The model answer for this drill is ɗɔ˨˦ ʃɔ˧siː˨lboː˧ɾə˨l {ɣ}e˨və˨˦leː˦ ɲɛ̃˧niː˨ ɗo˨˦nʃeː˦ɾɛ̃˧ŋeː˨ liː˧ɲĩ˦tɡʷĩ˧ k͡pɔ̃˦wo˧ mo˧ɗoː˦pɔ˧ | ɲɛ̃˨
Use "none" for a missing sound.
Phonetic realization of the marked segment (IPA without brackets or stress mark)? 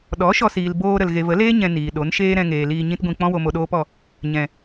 ɣ